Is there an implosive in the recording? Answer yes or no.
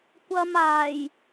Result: no